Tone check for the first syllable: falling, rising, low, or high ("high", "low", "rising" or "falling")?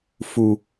low